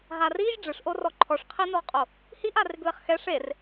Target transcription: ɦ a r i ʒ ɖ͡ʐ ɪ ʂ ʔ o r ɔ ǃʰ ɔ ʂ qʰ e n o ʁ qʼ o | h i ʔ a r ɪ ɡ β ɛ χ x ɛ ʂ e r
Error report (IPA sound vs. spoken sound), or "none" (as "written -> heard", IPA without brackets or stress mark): none